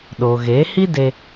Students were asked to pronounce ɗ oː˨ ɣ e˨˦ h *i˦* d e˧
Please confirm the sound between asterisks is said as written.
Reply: yes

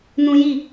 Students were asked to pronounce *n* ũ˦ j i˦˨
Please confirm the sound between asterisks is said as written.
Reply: yes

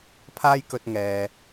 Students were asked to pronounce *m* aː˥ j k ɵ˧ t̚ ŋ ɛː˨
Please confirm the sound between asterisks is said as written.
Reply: no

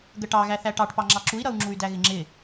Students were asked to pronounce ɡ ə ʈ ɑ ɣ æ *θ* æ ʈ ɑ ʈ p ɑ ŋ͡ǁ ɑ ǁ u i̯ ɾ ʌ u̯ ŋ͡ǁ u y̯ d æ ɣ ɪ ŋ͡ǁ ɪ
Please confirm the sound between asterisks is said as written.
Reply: yes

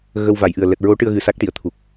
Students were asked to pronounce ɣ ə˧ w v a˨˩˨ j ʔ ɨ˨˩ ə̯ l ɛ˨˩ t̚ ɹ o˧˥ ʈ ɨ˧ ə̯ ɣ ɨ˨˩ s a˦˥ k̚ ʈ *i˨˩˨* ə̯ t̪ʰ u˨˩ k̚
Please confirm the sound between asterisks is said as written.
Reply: yes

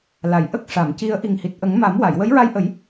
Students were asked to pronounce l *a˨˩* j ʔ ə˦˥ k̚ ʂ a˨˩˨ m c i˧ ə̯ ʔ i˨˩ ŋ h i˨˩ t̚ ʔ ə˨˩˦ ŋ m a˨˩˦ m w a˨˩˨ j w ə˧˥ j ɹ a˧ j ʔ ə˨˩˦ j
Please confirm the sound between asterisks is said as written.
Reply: yes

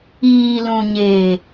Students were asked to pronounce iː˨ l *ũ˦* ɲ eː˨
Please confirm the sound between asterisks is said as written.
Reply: no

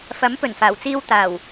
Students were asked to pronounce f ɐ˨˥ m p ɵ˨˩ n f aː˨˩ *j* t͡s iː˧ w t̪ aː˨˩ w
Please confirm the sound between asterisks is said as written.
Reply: no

